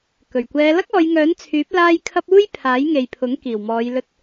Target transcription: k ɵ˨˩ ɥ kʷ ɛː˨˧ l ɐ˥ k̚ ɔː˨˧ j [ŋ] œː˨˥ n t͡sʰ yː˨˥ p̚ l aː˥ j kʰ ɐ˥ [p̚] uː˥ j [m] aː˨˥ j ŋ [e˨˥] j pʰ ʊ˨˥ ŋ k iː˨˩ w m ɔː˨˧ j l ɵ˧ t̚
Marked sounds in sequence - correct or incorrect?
correct, correct, incorrect: pʰ, incorrect: e˨

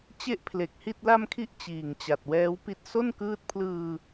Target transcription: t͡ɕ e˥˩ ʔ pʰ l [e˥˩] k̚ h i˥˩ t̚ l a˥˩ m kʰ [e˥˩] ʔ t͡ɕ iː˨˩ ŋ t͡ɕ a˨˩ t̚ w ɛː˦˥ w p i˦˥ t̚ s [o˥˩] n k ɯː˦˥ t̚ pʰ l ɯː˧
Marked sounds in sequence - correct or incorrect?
incorrect: e˨˩, incorrect: i˥˩, correct

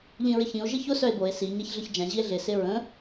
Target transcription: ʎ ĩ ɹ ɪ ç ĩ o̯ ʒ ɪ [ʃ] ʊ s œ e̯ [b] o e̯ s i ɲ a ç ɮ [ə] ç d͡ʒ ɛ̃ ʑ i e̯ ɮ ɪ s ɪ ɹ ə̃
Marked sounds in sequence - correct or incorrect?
incorrect: ç, correct, correct

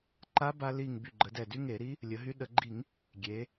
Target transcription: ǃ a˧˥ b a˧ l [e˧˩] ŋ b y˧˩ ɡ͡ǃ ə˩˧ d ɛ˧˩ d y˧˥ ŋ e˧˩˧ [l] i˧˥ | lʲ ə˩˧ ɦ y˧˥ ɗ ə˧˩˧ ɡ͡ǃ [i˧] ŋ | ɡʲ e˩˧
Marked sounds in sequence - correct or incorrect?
incorrect: i˧˩, incorrect: ɾ, incorrect: i˧˩˧

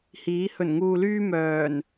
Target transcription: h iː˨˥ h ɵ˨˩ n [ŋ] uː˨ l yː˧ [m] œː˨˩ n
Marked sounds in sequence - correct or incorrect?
correct, correct

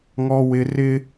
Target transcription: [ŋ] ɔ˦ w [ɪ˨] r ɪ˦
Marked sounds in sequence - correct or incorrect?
correct, incorrect: ɪ˦

